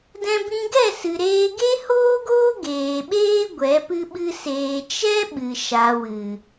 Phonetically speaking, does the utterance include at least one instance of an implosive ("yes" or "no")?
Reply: yes